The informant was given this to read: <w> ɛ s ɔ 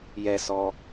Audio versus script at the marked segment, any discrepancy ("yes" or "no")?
yes